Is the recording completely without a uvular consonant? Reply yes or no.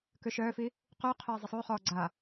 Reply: no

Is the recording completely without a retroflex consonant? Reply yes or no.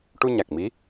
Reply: no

